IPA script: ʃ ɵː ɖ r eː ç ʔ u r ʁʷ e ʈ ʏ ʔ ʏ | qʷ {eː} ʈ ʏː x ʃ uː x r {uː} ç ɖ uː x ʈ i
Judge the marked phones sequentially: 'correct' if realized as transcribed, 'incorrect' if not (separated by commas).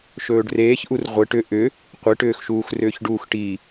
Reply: incorrect, incorrect